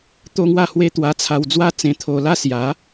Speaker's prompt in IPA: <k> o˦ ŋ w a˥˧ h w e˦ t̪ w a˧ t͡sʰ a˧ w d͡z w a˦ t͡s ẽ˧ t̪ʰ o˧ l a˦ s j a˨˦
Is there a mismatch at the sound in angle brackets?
yes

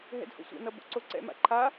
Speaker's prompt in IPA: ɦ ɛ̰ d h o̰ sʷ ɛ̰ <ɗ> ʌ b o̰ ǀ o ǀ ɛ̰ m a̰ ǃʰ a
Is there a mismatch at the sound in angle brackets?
yes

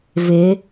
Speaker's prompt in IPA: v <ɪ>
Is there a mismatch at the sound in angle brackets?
no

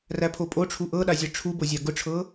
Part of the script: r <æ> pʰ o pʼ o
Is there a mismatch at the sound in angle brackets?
no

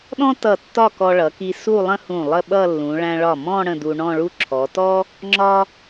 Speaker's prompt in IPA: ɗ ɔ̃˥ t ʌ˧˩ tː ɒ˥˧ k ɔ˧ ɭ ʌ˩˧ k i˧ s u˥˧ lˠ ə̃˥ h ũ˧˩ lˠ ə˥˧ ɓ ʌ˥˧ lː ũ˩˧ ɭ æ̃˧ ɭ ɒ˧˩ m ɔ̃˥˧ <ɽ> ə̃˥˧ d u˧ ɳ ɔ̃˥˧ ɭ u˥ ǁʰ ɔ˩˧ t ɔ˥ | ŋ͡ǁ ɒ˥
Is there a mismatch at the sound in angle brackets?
no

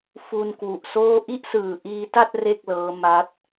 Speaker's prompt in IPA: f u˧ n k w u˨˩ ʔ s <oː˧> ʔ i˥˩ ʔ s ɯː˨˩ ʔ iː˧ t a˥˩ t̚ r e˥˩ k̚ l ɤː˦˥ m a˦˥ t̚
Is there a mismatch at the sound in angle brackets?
yes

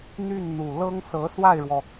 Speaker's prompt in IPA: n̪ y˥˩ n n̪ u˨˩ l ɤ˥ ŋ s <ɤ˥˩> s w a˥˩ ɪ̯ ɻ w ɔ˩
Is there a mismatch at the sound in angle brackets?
yes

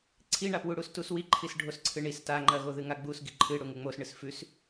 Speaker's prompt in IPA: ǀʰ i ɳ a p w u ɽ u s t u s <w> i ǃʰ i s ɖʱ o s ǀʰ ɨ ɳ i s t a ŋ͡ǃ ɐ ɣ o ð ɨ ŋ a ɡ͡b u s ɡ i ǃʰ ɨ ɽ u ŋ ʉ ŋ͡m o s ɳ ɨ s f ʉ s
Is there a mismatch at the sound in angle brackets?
no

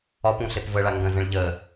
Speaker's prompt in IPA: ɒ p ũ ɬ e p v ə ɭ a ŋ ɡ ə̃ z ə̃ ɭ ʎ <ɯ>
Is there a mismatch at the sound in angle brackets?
yes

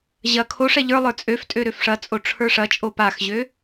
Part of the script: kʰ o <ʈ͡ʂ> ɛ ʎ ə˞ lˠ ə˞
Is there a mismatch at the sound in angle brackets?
yes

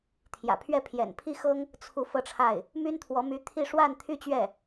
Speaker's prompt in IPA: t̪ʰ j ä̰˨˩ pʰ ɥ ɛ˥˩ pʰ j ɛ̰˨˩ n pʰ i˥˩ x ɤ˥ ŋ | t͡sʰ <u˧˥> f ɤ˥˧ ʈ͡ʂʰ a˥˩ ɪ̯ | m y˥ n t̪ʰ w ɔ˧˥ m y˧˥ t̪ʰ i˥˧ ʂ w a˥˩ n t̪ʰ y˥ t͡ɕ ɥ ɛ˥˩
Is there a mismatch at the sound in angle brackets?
no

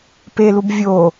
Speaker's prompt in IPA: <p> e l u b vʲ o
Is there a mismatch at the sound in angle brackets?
no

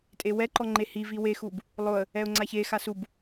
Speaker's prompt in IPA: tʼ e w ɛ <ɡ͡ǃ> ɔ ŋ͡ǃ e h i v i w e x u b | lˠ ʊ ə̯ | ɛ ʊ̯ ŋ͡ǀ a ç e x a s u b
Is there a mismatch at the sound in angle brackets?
yes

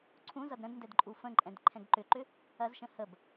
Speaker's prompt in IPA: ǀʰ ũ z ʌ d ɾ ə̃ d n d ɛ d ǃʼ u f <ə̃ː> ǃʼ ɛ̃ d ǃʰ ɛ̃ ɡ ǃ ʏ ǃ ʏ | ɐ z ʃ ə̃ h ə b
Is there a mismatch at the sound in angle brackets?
yes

